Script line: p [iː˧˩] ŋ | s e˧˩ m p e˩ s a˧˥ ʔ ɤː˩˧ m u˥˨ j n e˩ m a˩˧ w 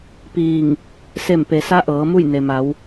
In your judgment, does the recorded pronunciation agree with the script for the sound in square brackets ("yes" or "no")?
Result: yes